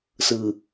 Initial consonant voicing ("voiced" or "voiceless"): voiceless